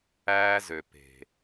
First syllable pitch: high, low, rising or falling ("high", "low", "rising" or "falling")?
high